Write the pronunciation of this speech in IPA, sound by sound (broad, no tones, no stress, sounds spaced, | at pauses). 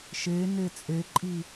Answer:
ʃ e n e t͡sʼ e ǃʼ i